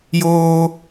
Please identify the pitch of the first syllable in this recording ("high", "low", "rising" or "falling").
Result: high